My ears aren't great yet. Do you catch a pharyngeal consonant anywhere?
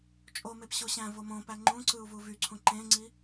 no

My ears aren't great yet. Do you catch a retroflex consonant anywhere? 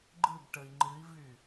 yes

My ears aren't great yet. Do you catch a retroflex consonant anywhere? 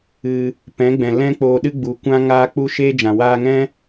no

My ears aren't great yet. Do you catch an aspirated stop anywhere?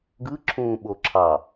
yes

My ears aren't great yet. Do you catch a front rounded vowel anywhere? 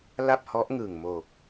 no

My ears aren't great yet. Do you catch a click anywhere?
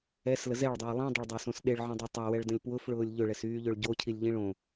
no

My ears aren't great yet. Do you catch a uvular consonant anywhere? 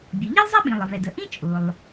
no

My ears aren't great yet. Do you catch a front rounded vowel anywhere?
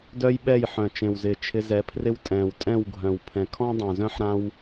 yes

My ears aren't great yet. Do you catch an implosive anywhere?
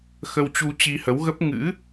no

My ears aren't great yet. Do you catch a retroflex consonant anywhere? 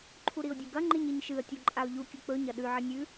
no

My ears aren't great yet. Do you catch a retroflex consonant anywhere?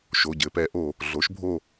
no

